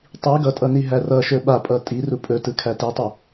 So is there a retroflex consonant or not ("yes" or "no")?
no